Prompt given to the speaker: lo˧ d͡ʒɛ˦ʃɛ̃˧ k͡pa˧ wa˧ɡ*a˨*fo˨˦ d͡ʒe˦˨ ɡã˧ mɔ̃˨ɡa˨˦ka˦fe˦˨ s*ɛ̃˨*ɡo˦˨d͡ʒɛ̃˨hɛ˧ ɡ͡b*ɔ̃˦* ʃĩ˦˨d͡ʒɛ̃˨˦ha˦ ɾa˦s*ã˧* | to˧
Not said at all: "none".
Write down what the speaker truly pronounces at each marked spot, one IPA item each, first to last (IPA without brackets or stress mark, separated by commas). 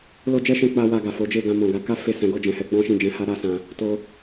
a˨, ɛ̃˨˦, ɔ̃˦, ã˧